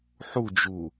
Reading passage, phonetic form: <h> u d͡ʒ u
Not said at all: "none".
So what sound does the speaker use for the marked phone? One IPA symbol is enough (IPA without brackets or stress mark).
ħ